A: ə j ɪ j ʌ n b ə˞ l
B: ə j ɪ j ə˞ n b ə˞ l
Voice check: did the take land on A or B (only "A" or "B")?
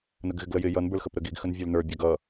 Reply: A